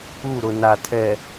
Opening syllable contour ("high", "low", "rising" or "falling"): falling